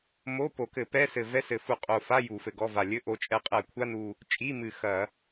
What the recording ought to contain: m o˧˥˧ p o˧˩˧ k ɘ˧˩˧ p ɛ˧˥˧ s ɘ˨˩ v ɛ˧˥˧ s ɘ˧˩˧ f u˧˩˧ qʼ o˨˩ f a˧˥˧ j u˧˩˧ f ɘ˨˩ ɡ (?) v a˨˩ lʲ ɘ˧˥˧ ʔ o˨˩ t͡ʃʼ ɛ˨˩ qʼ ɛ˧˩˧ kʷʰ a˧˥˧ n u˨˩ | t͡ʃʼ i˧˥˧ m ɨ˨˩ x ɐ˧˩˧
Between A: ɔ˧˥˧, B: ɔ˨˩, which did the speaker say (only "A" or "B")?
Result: A